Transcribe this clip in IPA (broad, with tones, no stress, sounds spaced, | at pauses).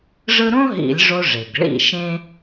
ʐ ɯ˥ ɾ õ˥ ɦ ḭ˧˩˧ lʲ ʐ o˧ ʐ e˩ ɡ ɭ ḭ˥˩ ʃ ẽ˥